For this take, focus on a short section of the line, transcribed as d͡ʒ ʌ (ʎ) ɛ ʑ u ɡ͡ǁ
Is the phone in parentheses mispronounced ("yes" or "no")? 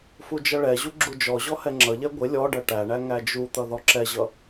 yes